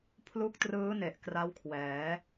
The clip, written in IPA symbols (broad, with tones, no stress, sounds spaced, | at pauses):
pʰ l u˦˥ k̚ t r ɯː˦˥ n e˨˩ ʔ k r a˦˥ w kʰ w ɛː˩˦